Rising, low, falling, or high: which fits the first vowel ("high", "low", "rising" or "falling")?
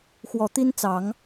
low